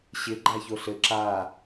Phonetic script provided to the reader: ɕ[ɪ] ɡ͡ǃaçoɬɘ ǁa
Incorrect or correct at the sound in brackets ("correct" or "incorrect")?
correct